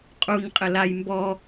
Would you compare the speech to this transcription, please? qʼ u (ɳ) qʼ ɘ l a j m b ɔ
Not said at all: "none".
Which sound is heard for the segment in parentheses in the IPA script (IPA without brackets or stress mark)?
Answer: ɲ